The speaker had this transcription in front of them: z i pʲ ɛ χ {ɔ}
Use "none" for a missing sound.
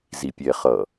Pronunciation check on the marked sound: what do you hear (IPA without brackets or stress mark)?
ʌ